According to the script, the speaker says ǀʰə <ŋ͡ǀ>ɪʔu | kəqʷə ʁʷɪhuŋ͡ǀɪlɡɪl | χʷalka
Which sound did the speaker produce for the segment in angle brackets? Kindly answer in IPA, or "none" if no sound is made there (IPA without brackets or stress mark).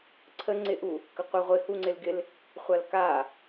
ŋ͡ǀ